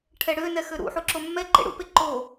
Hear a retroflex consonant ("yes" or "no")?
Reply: yes